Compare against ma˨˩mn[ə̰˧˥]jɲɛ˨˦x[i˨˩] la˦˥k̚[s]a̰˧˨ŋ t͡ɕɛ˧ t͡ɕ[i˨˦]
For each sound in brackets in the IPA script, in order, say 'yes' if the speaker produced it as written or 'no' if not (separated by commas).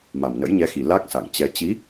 yes, yes, yes, yes